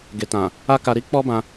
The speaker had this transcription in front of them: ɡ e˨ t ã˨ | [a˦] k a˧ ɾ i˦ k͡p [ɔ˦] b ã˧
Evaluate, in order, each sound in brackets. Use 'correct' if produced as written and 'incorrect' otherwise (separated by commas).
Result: correct, correct